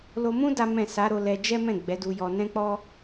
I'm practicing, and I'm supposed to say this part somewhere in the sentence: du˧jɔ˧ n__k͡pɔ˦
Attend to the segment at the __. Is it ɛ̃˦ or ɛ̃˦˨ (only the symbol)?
ɛ̃˦